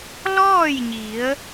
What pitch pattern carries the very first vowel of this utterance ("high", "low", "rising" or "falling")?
falling